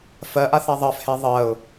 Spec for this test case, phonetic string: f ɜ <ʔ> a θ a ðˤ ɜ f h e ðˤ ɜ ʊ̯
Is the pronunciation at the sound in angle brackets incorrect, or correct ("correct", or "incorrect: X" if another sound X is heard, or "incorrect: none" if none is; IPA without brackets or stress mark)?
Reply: correct